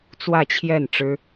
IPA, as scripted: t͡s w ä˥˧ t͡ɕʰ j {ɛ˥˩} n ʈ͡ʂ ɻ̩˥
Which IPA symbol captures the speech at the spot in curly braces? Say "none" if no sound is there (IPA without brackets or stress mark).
ɛ˥˩